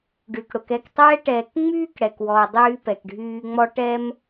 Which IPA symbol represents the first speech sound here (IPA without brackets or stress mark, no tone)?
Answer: ɖ